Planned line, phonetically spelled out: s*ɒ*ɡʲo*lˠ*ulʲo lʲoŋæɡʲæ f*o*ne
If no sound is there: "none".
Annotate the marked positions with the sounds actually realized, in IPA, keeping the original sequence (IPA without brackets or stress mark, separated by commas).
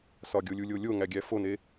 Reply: ɒ, lʲ, o